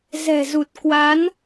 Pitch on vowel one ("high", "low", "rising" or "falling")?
low